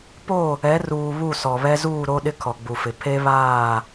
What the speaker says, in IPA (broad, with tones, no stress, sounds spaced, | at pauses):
p o˦˨ | ɛ˨˦ r uː˨ β u˦˨ s ɔ˨ β ɛ˦ z uː˦˨ ɾ o˦ ɗ ɪ˦ kʰ ɔ˨ ɡ͡b u˨ f ɪ˨ pʰ e˦ β aː˦˨